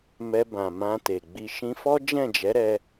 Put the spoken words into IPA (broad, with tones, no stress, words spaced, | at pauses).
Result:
mɛ˧bã˨ mã˧te˨ɡ͡bi˧ ʃĩ˧fɔ˦ d͡ʒɛ̃˦˨d͡ʒɛ˨˦ɾɛ˧